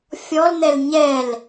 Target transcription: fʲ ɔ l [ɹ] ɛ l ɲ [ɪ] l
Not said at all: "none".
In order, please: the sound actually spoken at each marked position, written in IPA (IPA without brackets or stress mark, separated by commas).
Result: n̪, ɛ